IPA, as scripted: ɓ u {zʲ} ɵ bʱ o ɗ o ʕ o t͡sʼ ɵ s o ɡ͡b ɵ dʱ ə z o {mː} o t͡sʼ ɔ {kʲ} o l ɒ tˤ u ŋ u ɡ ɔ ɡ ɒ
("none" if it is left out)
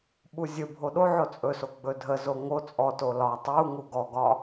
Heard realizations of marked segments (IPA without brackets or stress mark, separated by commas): zʲ, ŋ, t